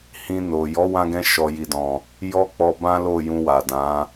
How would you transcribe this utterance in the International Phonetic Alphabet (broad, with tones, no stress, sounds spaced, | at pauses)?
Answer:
h ĩ˧ n o˨ j ɔ˨˦ w ã˧ ɡ ɛ̃˧ ʃ ɔ˨ j i˨ d ɔ̃˨ | j ɔ˦ k͡p ɔ˧ b ã˦ l o˦˨ j ũ˧ w a˨ d ã˨˦